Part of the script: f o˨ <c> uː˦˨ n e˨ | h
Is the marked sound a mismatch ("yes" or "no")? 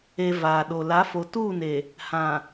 yes